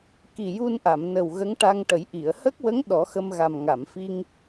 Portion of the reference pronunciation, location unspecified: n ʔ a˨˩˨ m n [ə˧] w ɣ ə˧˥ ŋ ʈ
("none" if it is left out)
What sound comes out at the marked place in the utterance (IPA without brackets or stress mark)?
ə˨˩